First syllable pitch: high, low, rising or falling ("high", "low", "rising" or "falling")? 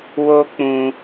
high